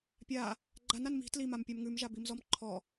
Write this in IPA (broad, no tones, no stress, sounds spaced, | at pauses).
pʲ a | ɡ͡ǃ a n a n m i̤ t l i m a m pʲ a m ŋ ʉ m ʒ a b i m z ɔ m ǃʰ ɔ